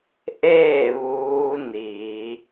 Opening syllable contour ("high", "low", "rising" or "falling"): falling